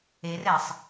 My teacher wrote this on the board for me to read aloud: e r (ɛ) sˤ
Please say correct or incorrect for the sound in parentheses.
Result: correct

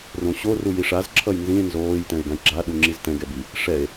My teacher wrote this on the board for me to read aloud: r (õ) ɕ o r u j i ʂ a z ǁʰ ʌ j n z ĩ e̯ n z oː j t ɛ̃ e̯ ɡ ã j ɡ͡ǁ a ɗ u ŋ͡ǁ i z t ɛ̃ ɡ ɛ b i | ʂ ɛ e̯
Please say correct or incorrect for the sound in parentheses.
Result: correct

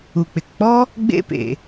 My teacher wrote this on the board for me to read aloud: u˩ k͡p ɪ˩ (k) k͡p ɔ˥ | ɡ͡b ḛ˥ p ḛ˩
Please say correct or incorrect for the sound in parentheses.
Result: correct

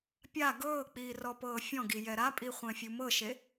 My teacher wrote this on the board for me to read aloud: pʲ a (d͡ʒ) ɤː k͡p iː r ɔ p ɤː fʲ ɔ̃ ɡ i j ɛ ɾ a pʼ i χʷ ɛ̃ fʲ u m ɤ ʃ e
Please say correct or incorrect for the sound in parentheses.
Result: incorrect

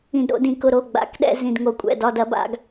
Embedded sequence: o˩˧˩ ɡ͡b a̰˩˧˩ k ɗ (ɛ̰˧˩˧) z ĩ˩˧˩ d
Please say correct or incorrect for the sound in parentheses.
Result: correct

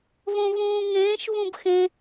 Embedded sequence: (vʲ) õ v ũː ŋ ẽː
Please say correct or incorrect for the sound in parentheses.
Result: incorrect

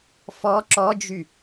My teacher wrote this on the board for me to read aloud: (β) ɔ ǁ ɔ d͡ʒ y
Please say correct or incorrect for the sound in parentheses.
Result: incorrect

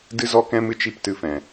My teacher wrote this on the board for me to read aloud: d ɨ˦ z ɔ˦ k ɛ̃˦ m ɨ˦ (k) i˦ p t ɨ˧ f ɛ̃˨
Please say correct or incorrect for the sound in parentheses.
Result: incorrect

